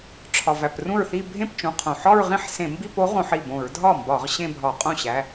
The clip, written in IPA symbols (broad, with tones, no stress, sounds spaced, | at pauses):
ʈ͡ʂʰ ɒ˩ v æ˩ p r ũ˥˩ ɹ θ i˥˧ bʱ ẽ˥˩ p t͡ʃ ũ˩˧˩ qʰ õ˩ ħ ɒ˥˧ ɹ ʁ ĩ˥˧ ħ s ẽ˧˩˧ m b i˥˧ p o˨˥ ʁ õ˧˩˧ ħ i˥˩ b õ˧˩˧ ɹ dʱ ɒ˥˩ m b ɒ˧˩˧ ʁ ɕ ẽ˥˧ bʱ ɒ˧˩˧ qʼ õ˥˩ ɕ æ˩˧˩